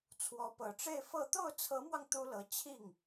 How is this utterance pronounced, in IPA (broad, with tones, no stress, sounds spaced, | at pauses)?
t͡sʰ w ɔ˧˥ p ɤ˨˩ ʈ͡ʂ e˥˧ ɪ̯ f ɤ˥˧ t̪ o˥˩ ʊ̯ t͡sʰ ɤ˧˥ m w ɑ˧ ŋ t̪ u˥ l ɤ˧˥ t͡ɕʰ i˥˩ ŋ